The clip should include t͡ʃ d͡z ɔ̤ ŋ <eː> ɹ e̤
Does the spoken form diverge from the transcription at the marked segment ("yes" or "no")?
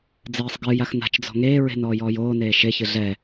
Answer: no